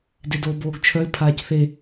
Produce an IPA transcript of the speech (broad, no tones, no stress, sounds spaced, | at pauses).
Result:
d e d oː b oː ɡ t͡ʃʰ œ ɪ̯ pʰ aː c θ e